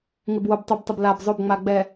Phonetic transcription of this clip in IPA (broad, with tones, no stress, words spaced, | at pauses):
ŋɪ˨bwo˨btˤʉ˨btˤə˨b la˨b zˤo˦˨bŋ͡ma˨ ɡ͡bɛ˨